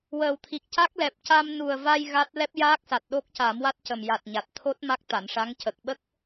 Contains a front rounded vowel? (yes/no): no